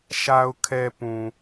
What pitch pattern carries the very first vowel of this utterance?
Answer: low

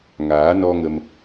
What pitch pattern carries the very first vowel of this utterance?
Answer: rising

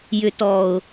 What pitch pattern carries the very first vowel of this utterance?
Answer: low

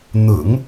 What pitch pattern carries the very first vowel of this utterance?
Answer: low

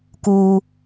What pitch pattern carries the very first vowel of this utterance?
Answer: low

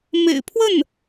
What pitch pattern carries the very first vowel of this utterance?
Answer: low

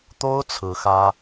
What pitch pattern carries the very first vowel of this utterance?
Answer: high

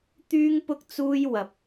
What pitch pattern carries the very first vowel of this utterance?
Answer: high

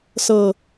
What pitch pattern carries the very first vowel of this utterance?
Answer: low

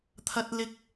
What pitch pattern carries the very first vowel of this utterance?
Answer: high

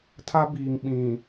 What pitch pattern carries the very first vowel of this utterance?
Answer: high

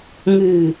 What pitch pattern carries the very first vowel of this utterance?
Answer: low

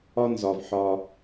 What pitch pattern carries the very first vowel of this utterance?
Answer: high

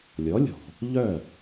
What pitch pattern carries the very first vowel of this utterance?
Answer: rising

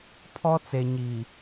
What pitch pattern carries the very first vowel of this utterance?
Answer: high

